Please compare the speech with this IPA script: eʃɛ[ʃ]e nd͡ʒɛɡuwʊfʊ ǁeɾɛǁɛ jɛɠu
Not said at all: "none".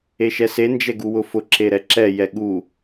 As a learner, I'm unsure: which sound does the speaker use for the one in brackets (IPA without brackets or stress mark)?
s